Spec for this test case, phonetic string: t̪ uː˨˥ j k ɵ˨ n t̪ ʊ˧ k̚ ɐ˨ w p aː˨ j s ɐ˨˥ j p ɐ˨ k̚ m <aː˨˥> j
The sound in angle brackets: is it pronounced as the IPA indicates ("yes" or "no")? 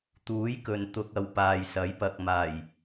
no